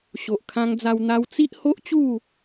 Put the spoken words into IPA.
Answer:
ɕ o˨ ʔ kʰ ã˧ ŋ d͡z a˧ w n̪ a˧ w t͡s i˦ ʔ h o˦ ʔ t͡ɕ u˥˧

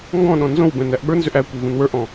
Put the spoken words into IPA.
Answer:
ŋ ɡ ɔ̃ ɗ ɔ̃ n z õ w b ɛ̃ n æ ʔ ɓ ə˞ n z ʏ ʔ æ kʷ e v ũ n w ə˞ ʔ ɔ̃

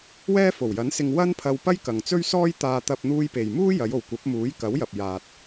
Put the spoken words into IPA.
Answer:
w ɛː˥ f o˨˩ w j ɐ˨˥ n s ɪ˧ ŋ w ɐ˥ n pʰ ɐ˧ w p ɐ˥ j k ɐ˨ ŋ t͡s ɵ˥ ɥ s ɔː˥ j t̪ aː˧ t̪ ɐ˧ p̚ n̪ uː˧ j p e˨ j m uː˥ j ɐ˨˧ j o˨ w kʷ ɐ˨˥ p̚ m uː˨˥ j k ɐ˨˥ w j ɐ˨ p̚ j aː˨ t̚

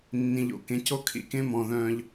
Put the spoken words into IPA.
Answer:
nː ĩ˨ ʎ o̰˨ k ẽ˨˦ c o˦ kʰ ḭ˦˨ k ẽ˦ m ɔ̃˨ ð œ̃ː˧ ʎ

